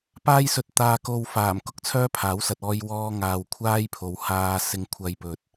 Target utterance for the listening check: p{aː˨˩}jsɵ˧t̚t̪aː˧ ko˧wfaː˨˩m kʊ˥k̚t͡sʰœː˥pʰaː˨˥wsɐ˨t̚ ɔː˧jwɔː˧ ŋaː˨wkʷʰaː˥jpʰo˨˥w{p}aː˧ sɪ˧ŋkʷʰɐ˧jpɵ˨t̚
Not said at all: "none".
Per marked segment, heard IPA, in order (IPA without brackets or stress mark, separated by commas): aː˥, h